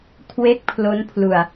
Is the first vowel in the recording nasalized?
no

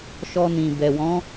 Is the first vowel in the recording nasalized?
no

